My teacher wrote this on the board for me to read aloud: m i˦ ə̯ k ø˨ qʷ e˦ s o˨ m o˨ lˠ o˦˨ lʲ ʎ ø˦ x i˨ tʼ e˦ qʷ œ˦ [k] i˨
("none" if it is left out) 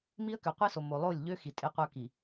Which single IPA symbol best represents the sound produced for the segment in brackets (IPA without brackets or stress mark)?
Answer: k